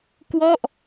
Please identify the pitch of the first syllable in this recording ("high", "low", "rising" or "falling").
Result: falling